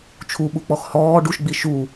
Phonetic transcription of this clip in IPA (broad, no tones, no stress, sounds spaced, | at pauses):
t͡ʃʰ u ɓ u k͡p ɔ x h ɔː ɖ u ʃ ɡ͡b i ʃ u